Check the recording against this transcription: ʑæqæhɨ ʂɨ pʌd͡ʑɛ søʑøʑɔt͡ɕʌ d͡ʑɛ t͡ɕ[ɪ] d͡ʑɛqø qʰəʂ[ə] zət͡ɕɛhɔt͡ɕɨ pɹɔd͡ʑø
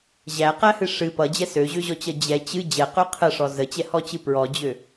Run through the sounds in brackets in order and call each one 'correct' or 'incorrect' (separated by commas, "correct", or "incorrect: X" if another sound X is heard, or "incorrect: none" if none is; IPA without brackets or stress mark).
incorrect: ɨ, incorrect: ɔ